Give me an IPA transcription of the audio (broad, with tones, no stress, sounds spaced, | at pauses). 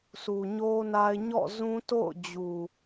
sʰ u˨ ɲ o˦ n a˦ ɪ̯ ɲ ɔ̰˦˨ z ũ˦ t o̰˦˨ ʊ̯ d͡ʑ u˨